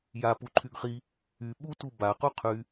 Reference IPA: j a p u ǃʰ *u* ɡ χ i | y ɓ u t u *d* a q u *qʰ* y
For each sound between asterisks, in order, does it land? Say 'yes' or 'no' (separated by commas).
no, no, yes